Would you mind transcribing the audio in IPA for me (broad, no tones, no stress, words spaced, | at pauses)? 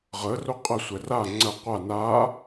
ʁə roqʼəsʷɛ ra ŋ͡ǀə qʷa na